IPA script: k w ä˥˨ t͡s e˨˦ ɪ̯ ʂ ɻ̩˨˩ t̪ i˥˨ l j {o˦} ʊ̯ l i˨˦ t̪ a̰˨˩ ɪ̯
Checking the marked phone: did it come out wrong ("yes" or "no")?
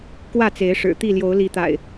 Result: yes